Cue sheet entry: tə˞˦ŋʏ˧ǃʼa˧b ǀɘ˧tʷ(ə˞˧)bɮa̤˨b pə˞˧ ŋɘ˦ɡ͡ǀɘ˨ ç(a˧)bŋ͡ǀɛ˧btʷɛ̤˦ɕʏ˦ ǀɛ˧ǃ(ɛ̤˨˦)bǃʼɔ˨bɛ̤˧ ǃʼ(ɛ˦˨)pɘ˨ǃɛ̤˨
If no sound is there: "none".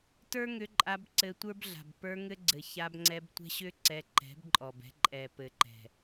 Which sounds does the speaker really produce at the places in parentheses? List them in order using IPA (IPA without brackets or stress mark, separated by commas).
ə˞˦, a˧, ɛ̤˨˦, ɛ˨